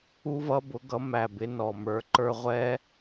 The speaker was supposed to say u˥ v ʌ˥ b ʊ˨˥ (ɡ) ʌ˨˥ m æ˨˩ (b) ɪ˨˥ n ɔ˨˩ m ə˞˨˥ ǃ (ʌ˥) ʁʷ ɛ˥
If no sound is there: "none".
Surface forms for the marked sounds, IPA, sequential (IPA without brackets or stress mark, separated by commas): ɡ, b, ə˞˥